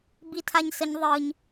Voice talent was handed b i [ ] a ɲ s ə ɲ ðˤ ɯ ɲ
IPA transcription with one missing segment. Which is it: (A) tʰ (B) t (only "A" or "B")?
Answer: A